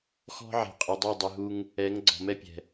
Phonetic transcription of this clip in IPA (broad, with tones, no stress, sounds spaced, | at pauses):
x ɔ̤˦ ʕ e̤˨ qʼ ə˨ dˤ e˦˨ dˤ i˨ ɦ u˦ ŋ | ɛ˨˦ ŋ ɡ͡ǀ ɔ̤˨ m ɛ˦ pʲ ɛ̤˨